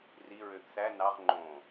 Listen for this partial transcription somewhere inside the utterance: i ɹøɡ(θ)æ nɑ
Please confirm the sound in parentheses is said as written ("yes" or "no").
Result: yes